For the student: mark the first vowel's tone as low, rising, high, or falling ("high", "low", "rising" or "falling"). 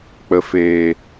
low